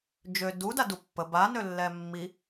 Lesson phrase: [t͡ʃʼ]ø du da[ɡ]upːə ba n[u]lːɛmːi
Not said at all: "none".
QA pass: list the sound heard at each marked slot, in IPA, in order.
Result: d͡ʒ, d, ø

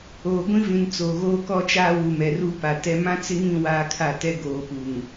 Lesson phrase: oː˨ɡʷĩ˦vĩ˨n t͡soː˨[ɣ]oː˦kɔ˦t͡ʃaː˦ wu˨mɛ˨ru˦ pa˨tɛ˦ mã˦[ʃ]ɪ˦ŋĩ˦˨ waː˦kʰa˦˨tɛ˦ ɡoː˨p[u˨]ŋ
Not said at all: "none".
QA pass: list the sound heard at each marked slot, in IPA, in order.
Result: ɣ, t͡s, u˨

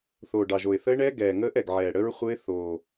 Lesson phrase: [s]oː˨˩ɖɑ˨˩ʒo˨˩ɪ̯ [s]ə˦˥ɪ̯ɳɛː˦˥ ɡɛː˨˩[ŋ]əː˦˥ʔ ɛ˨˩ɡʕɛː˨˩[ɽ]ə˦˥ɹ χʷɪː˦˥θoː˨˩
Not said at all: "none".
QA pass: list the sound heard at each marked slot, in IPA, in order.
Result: θ, θ, ŋ, ɽ

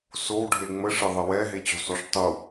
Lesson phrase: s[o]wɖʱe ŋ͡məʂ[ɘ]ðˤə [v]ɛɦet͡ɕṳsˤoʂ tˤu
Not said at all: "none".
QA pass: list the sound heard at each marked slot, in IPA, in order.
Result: o, ɘ, w

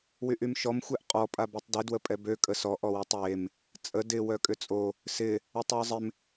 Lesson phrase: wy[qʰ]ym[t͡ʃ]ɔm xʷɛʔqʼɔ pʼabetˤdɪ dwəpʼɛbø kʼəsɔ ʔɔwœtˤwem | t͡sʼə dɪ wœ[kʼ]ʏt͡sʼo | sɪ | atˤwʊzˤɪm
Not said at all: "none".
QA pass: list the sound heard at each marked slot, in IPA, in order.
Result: ʔ, ʃ, kʼ

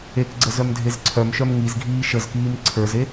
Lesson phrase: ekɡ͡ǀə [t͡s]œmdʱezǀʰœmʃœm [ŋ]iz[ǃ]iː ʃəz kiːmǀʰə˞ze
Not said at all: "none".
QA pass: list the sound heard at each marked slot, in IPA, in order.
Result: z, ŋ, ɡʱ

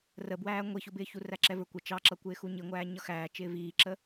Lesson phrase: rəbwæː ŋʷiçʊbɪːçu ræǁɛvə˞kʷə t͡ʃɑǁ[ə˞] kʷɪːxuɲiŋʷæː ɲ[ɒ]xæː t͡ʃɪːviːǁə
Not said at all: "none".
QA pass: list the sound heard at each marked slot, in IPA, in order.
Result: ʌ, ʌ

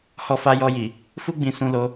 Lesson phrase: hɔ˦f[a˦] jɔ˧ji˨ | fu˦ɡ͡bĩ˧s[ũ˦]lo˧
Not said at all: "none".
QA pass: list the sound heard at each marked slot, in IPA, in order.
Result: a˦, ũ˧

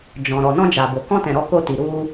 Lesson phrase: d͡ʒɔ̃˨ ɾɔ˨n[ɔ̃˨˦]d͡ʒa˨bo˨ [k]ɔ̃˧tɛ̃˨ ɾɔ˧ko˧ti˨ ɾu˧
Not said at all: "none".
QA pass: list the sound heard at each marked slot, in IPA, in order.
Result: ɔ̃˧, k

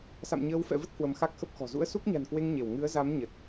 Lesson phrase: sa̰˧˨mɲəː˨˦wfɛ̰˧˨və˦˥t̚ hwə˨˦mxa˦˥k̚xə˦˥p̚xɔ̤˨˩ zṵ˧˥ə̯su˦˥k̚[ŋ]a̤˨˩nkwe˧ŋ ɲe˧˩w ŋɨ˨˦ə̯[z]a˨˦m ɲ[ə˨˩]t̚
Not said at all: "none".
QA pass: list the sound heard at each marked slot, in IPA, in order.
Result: ɲ, z, ə˨˩

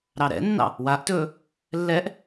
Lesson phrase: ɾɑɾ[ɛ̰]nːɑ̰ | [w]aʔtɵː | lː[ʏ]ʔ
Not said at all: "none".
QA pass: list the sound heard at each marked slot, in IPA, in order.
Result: ɛ̰, w, ɛ

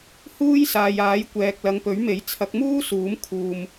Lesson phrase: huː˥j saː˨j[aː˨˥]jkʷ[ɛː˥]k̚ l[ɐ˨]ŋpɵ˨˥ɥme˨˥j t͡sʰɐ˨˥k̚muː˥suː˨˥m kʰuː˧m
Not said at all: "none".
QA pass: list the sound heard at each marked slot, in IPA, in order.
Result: aː˨˥, ɛː˨, ɐ˨˧

